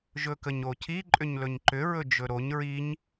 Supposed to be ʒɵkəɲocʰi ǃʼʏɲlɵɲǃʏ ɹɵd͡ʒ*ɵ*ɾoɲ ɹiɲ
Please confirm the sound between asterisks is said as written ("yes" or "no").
yes